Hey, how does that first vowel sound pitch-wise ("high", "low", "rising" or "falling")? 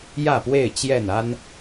falling